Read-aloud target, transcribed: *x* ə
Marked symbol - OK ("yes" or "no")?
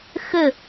yes